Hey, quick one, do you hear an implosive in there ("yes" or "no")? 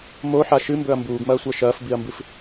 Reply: no